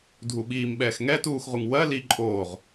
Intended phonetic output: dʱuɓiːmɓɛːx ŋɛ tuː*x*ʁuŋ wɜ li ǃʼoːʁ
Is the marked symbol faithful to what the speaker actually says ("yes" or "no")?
yes